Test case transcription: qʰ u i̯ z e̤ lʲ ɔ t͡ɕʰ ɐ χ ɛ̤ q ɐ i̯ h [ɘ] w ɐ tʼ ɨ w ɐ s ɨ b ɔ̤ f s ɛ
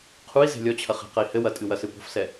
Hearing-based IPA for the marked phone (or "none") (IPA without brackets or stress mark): ɘ